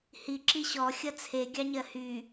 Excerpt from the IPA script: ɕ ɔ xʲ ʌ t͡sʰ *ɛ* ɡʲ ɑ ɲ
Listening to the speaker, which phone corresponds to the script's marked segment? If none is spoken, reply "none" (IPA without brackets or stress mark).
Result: e